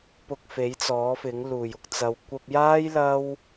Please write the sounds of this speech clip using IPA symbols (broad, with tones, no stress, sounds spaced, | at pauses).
p ʊ˧ k̚ f e˨˥ j t͡s ɔː˨˥ f ɪ˨˥ ŋ l uː˨˩ j ʊ˨ k̚ t͡s ɐ˨ w kʷ ɐ˧ p̚ j aː˥ j l ɐ˥ w